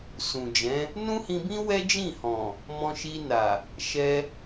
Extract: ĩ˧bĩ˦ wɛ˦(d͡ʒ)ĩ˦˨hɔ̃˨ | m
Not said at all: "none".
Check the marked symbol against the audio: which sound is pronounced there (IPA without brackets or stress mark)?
d͡ʒ